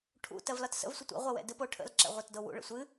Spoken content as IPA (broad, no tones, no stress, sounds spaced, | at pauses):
ʈʰ ṵ t ɜ v l ɒ t s ə̰ v sʷ ə tʷ ɛ̰ ʁʷ ɛ w ɛ̰ d ɨ p o ʈʰ ə̰ l ǁ ɛ̰ ʁʷ ɛ t d o w ṵ ɭ ə̰ sʷ ɨ